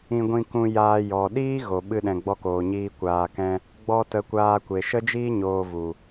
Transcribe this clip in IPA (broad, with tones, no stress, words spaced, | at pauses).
ĩ˧ɡʷĩ˧kũ˧jaː˧ jɔ˨ ɗiː˦ɣo˨ ɓɨ˧ɗɛ̃˨ ɡ͡bɔ˧koː˨ɲiː˧ kʷaː˧kɛ̃˦ | ɡ͡bɔ˧ tə˨˦kʷaː˧ kʷe˨ʃə˦d͡ʒiː˦ ɲoː˧vu˨